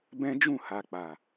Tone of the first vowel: high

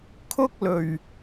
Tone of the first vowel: high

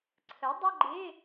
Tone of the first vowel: rising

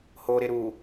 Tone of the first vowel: low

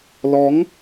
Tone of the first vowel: rising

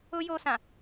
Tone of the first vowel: high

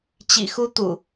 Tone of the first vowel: low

